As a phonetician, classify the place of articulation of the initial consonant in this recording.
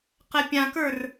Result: uvular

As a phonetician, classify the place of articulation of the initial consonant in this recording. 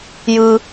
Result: palatal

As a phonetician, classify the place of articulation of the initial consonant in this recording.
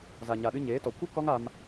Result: alveolar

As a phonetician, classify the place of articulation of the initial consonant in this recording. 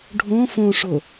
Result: retroflex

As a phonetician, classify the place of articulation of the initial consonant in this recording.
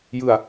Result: palatal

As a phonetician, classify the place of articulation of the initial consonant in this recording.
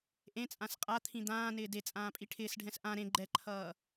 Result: glottal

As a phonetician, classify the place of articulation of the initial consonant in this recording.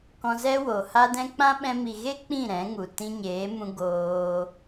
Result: velar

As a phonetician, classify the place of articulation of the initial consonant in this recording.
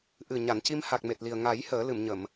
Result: glottal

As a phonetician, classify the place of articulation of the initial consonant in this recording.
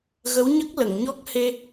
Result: velar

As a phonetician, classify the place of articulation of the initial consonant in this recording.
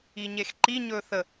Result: palatal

